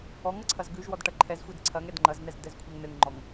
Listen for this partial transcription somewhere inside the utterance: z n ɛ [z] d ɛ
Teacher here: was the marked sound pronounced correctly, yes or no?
yes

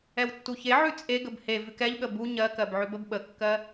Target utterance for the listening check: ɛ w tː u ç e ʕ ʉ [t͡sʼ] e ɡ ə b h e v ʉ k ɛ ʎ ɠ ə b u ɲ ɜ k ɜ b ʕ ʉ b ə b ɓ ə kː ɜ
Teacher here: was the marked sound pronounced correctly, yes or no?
yes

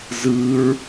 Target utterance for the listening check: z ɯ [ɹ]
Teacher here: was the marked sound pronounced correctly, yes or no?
yes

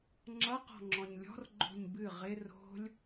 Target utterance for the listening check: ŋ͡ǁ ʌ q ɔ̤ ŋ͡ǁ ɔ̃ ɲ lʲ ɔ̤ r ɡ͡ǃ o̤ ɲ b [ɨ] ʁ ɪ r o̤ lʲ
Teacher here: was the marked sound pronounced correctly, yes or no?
yes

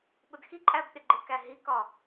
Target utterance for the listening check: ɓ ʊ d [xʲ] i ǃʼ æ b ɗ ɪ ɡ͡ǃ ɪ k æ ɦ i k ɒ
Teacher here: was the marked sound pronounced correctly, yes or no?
no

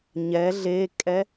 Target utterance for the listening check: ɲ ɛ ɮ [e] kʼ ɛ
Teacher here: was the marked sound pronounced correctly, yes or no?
yes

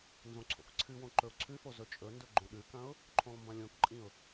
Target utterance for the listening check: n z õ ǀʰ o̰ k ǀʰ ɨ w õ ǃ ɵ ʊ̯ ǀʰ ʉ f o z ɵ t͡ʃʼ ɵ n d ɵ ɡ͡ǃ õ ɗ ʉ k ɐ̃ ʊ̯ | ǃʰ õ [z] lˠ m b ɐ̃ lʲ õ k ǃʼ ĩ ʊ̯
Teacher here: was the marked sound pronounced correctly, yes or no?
no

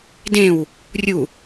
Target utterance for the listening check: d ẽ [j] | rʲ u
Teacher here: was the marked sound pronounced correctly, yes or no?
no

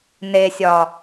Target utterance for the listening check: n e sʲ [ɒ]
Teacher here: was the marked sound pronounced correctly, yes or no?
yes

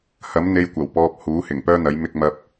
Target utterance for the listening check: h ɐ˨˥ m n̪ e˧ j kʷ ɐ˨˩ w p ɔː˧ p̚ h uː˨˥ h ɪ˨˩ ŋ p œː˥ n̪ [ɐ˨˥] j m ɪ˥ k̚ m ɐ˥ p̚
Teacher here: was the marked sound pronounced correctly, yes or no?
yes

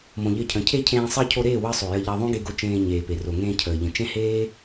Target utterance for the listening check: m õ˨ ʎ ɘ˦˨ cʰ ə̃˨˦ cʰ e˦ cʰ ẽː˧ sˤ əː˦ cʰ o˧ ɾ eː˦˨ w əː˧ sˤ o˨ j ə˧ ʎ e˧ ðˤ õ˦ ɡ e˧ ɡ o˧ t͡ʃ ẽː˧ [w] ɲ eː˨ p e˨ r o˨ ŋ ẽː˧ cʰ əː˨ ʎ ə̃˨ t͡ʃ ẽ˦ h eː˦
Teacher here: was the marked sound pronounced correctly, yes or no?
no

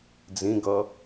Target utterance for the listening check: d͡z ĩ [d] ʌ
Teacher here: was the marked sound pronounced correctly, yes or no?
no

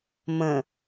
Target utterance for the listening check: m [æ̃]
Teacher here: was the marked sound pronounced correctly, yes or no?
no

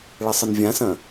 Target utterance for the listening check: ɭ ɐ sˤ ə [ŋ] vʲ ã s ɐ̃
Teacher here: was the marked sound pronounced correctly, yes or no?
no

